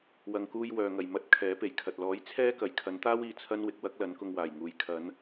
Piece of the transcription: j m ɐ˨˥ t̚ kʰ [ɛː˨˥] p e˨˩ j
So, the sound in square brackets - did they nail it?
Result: yes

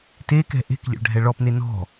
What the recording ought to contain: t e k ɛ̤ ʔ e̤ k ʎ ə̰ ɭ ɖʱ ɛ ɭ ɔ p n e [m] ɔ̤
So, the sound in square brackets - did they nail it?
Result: no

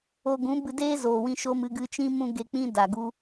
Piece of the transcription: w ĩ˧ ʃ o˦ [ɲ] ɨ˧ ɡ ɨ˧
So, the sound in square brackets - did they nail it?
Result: no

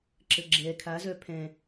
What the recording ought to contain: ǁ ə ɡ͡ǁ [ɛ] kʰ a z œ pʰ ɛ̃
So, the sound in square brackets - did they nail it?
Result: yes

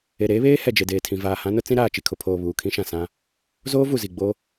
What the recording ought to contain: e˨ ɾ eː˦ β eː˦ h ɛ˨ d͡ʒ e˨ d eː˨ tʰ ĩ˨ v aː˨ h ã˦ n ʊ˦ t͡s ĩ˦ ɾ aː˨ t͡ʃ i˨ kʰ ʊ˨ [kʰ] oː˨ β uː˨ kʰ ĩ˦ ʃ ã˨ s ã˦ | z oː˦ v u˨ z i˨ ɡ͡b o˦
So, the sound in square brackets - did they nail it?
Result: no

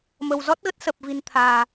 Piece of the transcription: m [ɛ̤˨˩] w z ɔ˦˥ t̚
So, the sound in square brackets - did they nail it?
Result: no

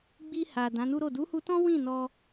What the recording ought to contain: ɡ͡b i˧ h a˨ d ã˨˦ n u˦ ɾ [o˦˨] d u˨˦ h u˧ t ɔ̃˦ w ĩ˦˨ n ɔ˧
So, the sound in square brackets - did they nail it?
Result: yes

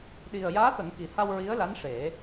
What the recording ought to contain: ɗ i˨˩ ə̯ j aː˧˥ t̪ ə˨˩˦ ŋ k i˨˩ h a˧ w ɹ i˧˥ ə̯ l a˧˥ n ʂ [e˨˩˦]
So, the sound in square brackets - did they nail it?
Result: yes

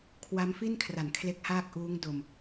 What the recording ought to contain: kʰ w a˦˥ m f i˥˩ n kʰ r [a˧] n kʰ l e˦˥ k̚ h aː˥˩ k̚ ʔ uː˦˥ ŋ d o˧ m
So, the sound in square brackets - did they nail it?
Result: no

